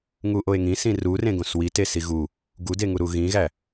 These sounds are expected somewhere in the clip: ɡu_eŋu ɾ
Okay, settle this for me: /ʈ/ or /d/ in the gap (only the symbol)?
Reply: d